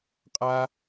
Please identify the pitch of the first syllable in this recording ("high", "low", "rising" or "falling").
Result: high